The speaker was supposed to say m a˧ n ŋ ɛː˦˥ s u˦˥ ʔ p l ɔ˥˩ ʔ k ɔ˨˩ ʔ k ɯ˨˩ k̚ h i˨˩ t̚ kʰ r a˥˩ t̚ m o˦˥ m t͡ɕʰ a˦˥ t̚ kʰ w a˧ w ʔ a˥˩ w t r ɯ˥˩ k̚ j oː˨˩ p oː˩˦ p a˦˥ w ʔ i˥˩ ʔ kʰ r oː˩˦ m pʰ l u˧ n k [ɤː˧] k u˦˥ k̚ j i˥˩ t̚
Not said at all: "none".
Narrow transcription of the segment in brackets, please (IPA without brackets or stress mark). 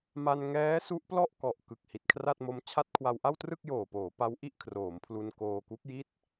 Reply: oː˧